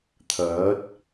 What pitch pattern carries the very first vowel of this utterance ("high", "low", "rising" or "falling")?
rising